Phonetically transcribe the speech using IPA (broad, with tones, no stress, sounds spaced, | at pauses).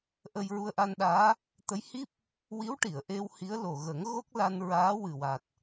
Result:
ʔ ə˧ j ɹ u˧ ə̯ ʔ a˧ n ɗ aː˧˥ | t̪ ə˧˥ j h i˦˥ p̚ | w i˧˥ w ʈ i˨˩˨ ə̯ ʔ e˧ w h i˧˥ ə̯ l o˨˩ ɣ ə˨˩˦ ŋ ɣ o˦˥ k̚ l a˧ n ɹ aː˧˥ w ɨ˨˩ w a˨˩ t̚